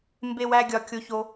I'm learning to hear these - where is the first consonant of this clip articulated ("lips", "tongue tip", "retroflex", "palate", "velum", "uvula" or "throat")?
lips